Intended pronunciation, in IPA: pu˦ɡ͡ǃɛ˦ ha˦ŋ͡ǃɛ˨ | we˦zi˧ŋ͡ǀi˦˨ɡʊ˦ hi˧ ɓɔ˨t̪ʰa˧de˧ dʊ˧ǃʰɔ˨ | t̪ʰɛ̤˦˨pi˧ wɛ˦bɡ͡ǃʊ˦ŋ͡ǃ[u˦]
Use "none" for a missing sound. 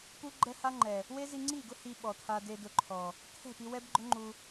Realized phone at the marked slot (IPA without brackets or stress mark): u˧